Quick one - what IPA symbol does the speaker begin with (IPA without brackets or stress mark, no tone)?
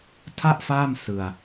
tʰ